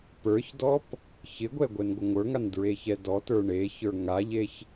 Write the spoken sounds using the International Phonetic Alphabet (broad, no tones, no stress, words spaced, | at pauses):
pə˞çdɔp | çɪɡʷɛ ɡʷɛnɡʷɪŋʷə˞ŋan dɹeçɛdɔtə˞ ɳeçə˞ ŋaʎeç